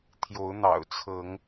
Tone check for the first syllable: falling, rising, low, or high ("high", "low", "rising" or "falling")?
rising